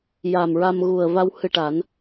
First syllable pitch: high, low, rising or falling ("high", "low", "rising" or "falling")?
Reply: low